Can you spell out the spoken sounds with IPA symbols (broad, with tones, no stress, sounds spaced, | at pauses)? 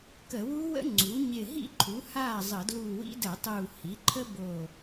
k ə˧˩˧ w u˦˥ w ə̰˦˥ ŋ͡ǀ u˩˥ ɲ ɪ˧˩ ɦ ḭ˥˩ ǃʰ u˩˥ h aː˥˩ zˤ ə˧˩˧ d l uː˧˩ w ḭ˦˥ d ə˧˩˧ tˤ uː˧˩ h i˩˥ ǃʰ ə˦˥ b o˧˩